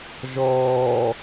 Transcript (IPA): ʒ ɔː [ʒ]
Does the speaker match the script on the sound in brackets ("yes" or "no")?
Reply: no